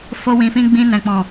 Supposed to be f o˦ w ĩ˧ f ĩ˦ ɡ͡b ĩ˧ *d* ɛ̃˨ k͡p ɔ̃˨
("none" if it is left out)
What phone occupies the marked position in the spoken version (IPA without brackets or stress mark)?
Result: n